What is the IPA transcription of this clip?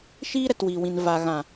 ʃ iː˦ ɾ ɛ˨ t w iː˨ w ĩ˨ n v a˨ ɣ ã˨

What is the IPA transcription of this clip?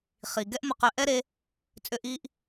χ i˨ ɡ ɛ˦ ʔ m ʊ˧ q ø˧ ʔ ɛ˦ ɾ e˧ | t͡sʼ ʏ˧ ʔ i˧ ʔ

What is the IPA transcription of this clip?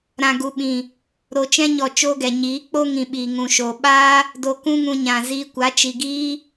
ɾ ã˨ ɡ u˨ ɓ ĩ˨ | ɾ o˨ t͡ʃ ɛ̃˧ ɲ ɔ˨ t͡ʃ o˧ ɡ ɛ˨ ɲ iː˨˦ k͡p o˧ ŋ ĩ˨ ɓ iː˨ ŋ ũ˧ ʃ o˧ ɓ aː˦ | d o˨ k ũ˧ ŋ ũ˨ ɲ ã˨ z iː˧ kʷ a˨˦ t͡ʃ i˧ ɡ iː˦

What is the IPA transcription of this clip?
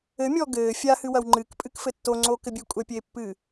ɘ mʲ ɔ ɡ ɘː fʲ a h ɨ w ɐ w ŋ͡ǃ ɨ k pʼ ɨ k f ɘ tː o ŋ͡ǀ o k ɘ bʲ e kʷʼ ɛ pʲ e pː ɨ

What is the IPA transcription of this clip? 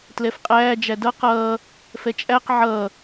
t l ɛ f qʼ æː d͡ʒ æ d ʌ q ʌː | f ɛ t͡ʃʼ æ q ʕ ʌː

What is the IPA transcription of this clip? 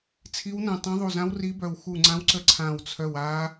t͡sʰ i˦˥ w n ɛ̃˦˨ tˤ ɛ̃˦˥ ðˤ u˦˨ z ã˦˥ w r i˦˥ b œ˦˨ w x u˦˨ ŋ͡ǀ ã˦˥ w ǀ ə˦˥ ǀʰ ã˦˨ w t͡sʰ œ˦˨ w a˦˥

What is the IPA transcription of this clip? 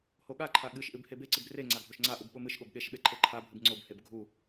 h o ɠ a ǃʰ a ɠ ɨ ʃ ʔ ɨ b h e b e ǀ ɨ b r e ŋ͡ǀ a ɡʱ o ʃ ŋ͡ǀ a ʔ u b ɓ o m ɨ ʃ ɠ o b ɠ e ʃ ɓ e ǃʰ e ǃʰ a bʱ ɨ b ŋ͡ǀ o b h e b ɡʱ u

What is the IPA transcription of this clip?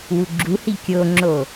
w u ɡ͡ǁ u h i kʲ o ŋ͡ǁ o

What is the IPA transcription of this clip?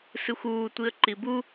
s ɨ xʷ uː tʷ i ə̯ ǃ i b u

